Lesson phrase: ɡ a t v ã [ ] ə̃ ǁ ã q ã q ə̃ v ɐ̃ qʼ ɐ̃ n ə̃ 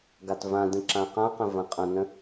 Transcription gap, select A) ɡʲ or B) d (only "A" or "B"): B